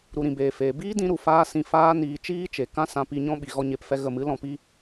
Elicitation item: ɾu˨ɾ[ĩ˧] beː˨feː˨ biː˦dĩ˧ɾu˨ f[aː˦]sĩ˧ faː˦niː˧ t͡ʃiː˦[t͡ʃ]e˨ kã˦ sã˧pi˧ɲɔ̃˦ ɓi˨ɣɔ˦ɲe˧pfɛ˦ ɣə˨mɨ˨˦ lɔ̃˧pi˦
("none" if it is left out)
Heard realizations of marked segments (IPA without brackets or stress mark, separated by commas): ĩ˨, aː˦, t͡ʃ